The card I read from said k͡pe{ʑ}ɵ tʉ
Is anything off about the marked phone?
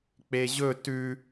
no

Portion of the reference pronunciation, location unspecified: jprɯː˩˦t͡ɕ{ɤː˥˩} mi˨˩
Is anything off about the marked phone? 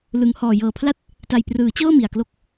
no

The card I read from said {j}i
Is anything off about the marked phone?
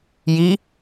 no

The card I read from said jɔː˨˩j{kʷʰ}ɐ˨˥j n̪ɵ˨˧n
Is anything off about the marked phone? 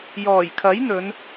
yes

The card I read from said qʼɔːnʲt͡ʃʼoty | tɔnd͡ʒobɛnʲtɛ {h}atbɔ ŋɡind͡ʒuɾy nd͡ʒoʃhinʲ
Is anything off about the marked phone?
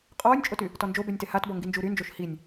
no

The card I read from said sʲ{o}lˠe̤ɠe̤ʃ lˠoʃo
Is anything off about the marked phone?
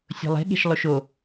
yes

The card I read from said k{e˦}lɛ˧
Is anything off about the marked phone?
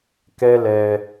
yes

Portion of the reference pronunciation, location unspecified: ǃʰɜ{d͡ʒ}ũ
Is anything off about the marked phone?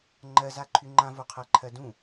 yes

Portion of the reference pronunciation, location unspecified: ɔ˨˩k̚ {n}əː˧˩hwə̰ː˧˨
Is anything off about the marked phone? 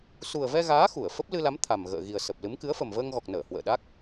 no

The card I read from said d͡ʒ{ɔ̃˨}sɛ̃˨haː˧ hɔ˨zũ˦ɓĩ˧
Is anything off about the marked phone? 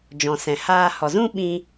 no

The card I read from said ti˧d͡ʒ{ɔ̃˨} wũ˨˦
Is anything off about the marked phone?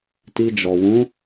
yes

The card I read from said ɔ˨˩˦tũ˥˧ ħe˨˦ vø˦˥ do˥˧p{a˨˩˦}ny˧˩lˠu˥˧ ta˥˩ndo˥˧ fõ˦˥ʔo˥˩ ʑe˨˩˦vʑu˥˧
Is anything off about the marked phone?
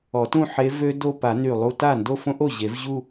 no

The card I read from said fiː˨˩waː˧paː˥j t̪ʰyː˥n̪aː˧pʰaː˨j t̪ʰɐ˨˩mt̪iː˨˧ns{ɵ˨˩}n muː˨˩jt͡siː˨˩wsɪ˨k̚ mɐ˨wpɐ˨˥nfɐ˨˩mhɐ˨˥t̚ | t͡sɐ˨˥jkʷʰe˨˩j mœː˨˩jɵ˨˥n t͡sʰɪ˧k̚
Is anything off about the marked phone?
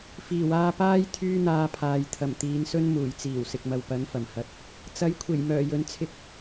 yes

